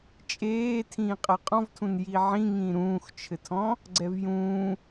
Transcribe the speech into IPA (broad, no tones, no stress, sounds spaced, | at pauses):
t͡ʃʼ eː tʰ ĩː qʼ ɘ qʼ ɔ̃ v tʰ ũ n j i ʕ ĩ ŋ ĩː ɾ ũː x t͡ʃʰ ɘ tʰ ɔ̃ | ɡ͡ǀ ɛ v j ũː